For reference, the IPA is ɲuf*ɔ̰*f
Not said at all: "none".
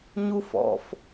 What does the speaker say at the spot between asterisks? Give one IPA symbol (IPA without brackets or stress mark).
ɔ̰